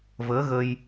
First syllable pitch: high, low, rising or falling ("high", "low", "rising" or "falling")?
rising